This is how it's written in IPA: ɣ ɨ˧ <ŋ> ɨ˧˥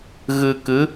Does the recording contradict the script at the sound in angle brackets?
yes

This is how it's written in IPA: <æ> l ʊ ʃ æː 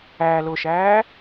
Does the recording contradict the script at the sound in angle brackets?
no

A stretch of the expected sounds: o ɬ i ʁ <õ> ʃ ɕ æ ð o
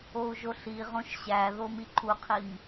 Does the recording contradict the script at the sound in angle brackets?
no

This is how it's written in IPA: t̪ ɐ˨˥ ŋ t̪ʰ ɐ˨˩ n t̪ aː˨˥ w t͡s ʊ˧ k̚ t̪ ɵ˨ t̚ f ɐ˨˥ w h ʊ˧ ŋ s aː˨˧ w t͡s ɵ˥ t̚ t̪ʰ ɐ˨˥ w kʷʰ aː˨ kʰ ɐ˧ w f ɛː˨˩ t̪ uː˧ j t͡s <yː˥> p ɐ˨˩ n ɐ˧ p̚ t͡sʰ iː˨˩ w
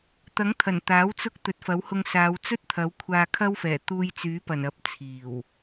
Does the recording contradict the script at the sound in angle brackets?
yes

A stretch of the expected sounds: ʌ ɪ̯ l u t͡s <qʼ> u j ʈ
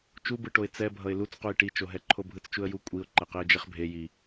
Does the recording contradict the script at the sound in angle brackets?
yes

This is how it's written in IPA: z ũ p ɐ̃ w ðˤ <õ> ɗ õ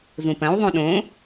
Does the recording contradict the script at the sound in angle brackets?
yes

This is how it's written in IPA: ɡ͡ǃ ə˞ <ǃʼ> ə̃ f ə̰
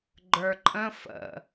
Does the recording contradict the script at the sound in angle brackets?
no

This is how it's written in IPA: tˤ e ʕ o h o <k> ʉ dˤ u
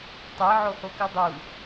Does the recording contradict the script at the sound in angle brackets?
no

